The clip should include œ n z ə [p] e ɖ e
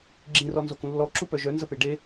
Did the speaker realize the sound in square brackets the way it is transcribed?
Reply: yes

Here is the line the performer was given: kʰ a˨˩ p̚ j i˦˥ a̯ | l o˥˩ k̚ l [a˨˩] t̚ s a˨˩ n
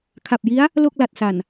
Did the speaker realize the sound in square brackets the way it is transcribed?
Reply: yes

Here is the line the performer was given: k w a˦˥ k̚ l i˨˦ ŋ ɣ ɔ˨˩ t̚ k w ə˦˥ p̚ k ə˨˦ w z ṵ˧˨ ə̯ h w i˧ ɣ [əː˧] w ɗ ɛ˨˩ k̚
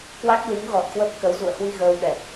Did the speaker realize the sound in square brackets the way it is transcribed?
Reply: yes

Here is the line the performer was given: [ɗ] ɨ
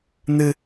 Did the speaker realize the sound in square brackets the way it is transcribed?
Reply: no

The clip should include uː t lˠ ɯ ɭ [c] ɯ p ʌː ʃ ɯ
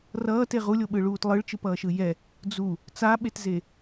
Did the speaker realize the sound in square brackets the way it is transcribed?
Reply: no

